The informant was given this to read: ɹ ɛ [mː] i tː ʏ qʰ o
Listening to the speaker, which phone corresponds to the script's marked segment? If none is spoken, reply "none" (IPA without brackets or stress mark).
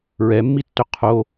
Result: mː